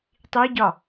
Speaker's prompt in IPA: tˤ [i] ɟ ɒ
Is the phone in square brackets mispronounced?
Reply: no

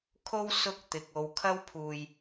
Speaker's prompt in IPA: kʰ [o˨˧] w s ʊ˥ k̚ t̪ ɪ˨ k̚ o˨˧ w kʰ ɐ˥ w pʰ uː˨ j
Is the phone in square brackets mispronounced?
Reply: yes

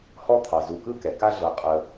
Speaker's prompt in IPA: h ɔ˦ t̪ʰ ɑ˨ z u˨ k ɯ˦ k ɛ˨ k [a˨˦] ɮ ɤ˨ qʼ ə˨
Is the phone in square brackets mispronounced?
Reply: yes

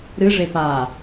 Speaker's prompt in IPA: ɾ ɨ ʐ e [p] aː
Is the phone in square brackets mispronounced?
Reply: no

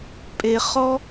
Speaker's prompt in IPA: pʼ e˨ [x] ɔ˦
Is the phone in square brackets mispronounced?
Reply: yes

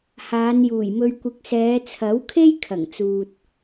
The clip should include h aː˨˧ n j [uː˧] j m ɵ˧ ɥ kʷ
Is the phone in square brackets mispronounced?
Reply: yes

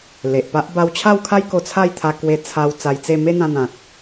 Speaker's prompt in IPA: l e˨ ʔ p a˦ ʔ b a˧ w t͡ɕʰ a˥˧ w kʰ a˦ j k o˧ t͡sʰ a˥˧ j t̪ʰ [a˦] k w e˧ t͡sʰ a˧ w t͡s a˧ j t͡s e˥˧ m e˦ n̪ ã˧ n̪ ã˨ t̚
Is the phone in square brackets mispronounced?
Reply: yes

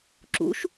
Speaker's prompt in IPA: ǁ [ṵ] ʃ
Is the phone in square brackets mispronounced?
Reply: no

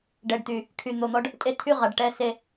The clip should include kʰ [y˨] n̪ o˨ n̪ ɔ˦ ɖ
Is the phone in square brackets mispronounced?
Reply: no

